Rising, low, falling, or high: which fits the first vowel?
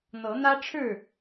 rising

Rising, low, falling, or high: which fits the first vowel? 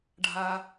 high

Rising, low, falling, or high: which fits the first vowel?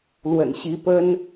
low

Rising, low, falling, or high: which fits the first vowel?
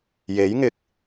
rising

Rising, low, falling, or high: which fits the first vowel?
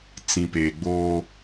low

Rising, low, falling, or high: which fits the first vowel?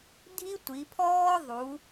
high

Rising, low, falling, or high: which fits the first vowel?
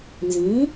rising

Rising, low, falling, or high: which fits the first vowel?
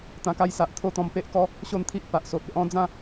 low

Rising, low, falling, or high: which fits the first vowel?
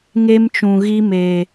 high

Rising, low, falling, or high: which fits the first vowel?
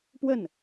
falling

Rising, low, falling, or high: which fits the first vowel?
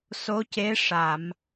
rising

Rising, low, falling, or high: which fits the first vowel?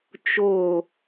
falling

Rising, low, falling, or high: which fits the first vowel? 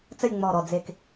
falling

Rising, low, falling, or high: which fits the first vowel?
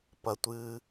low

